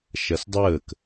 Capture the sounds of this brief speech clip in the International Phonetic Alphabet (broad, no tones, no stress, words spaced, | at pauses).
ʃɐsdˤəːk